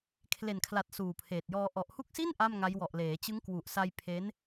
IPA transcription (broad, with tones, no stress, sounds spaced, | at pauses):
kʰ l e˨˩ n kʰ l a˨˩ t̚ s uː˨˩ pʰ eː˨˩ t̚ j ɔː˧ ʔ ɔ˨˩ ʔ h u˦˥ k̚ s i˥˩ n ʔ a˥˩ m ŋ a˦˥ j w ɔ˨˩ ʔ l eː˩˦ t͡ɕ ɯ˦˥ ŋ k w u˨˩ ʔ s a˧ j pʰ e˦˥ n